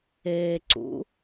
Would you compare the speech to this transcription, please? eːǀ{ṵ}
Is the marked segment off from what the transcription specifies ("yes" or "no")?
no